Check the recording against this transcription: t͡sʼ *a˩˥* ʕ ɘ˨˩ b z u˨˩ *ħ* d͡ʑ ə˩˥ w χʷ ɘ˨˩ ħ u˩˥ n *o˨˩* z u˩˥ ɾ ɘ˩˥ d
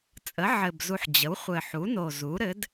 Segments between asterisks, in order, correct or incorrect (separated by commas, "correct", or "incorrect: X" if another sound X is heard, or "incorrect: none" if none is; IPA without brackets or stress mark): incorrect: ə˩˥, correct, correct